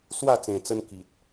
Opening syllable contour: falling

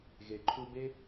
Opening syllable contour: low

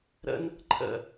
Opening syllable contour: high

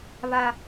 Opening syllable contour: high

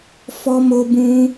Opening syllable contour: high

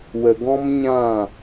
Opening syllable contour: low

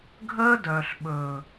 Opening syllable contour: high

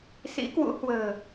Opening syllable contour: rising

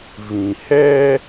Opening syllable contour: low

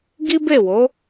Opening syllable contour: high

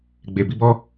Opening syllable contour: low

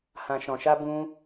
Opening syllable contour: low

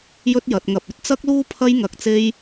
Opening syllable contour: high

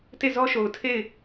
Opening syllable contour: falling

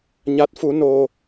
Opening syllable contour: rising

